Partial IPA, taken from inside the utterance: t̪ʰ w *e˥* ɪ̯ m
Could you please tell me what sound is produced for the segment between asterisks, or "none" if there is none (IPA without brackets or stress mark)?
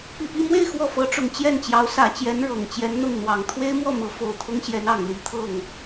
e˥